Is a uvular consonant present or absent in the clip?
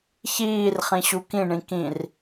present